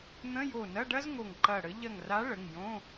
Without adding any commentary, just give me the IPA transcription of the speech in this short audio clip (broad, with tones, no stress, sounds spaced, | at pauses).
n̪ ə̃˧˥˧ j o˧˩ n ɐ˧˥˧ ɖ ɐ˥ z ŋ o˧˩ ŋ ǃ ɐ˧˩ ɽ ə˨˥ ʎ ɐ˧˩ ŋ r a˨˥ ɭ ə˩˧˩ ŋ j õ˧˥˧